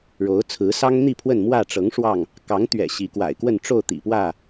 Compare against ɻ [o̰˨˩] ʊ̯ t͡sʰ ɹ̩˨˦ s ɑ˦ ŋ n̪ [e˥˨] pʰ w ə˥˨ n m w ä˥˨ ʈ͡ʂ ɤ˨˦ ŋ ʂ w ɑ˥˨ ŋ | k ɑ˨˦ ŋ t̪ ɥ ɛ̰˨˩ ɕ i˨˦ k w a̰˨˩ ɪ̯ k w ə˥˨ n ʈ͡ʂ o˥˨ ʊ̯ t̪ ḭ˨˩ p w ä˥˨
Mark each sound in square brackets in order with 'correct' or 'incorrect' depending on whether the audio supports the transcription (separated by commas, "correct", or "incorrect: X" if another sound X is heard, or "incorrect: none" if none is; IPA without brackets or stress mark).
incorrect: o˨˦, incorrect: i˥˨